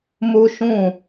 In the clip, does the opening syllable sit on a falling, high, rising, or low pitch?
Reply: high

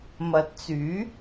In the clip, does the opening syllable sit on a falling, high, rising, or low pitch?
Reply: low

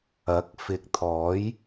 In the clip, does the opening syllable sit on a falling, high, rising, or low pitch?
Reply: rising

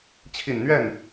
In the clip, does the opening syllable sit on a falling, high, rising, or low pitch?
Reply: low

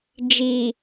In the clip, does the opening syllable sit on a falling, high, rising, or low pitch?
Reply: low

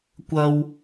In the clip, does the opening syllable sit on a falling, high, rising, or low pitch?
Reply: high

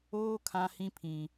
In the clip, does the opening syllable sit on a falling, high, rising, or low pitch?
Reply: high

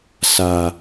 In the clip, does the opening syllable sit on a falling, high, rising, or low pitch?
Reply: low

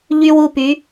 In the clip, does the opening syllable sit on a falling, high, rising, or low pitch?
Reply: high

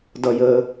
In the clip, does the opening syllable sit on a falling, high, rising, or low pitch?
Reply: high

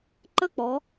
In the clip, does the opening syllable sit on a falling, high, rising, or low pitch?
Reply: falling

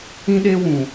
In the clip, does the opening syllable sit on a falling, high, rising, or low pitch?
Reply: high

